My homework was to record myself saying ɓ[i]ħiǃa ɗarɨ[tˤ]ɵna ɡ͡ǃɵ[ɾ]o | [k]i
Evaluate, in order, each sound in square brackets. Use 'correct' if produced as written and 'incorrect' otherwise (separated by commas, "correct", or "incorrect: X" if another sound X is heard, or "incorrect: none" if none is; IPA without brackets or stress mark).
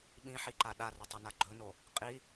incorrect: ĩ, correct, incorrect: n, incorrect: qʼ